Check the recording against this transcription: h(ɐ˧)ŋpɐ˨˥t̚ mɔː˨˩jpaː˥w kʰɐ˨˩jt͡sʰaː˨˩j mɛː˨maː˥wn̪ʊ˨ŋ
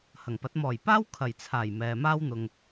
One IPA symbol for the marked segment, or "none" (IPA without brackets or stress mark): ɐ˨˩